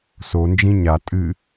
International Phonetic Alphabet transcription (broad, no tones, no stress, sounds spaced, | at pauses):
s o n d͡ʒ ĩ ɲ a tʼ ɨ